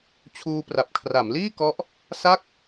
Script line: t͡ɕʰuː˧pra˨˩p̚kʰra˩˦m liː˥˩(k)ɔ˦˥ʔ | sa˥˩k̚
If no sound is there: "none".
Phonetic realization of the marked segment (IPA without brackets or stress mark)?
k